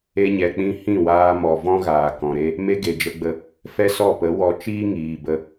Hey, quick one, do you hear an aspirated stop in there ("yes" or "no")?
no